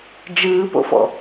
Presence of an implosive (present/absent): absent